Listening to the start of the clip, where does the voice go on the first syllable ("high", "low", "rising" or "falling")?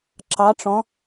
rising